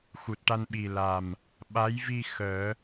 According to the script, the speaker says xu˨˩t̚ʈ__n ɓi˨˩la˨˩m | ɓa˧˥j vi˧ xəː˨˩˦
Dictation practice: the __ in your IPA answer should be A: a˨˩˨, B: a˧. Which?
B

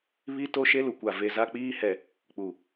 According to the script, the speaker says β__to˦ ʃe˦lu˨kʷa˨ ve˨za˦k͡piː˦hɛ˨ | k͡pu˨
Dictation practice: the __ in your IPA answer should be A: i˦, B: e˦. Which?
A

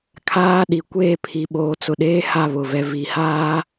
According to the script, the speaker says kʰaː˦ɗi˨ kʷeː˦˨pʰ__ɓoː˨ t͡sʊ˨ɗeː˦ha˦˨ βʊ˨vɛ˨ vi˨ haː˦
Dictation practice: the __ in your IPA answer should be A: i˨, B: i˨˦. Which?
A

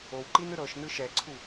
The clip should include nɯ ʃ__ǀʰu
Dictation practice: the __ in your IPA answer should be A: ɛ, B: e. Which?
A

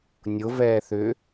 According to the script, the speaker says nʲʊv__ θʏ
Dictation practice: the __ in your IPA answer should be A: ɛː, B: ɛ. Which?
A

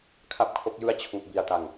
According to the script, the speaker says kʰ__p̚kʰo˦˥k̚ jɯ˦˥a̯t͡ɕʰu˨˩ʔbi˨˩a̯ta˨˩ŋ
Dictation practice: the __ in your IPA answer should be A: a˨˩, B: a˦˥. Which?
B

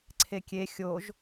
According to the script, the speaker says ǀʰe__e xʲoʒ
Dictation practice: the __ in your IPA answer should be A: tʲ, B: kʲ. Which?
B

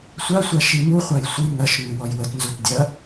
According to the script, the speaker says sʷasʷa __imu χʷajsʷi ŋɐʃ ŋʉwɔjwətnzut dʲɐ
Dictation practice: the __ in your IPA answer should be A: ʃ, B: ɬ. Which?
A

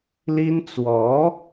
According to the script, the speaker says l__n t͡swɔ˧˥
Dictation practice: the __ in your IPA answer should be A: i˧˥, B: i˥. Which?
B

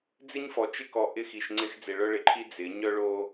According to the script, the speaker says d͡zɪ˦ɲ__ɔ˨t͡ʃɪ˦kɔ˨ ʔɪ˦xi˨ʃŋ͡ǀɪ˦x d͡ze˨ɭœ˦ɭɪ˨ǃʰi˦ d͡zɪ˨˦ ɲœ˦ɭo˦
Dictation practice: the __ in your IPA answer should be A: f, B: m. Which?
A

